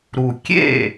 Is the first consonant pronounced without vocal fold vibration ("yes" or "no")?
no